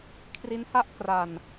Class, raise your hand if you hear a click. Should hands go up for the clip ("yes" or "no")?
no